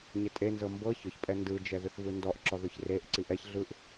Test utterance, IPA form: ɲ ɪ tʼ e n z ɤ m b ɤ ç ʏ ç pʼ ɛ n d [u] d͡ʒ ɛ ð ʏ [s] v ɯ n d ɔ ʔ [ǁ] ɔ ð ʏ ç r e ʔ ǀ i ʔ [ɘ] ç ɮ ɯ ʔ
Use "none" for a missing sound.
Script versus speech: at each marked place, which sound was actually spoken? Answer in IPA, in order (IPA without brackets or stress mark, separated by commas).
ɯ, θ, ǁ, ɛ